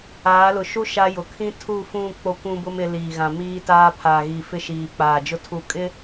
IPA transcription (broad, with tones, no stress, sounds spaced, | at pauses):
aː˨˦ l ʊ˨ ʃ u˦ ʃ a˦ j ʊ˨ kʰ ĩ˦ tʰ u˦˨ f ũ˦˨ k͡p o˦ kʷ ũ˦ b ʊ˦ m ɪ˨˦ l iː˨ ɣ ã˨ m iː˦ t aː˦ pʰ aː˨ ɣ iː˨ f ɪ˦˨ ʃ iː˨ k͡p aː˨ d͡ʒ ʊ˦ tʰ u˨ kʼ ɪ˦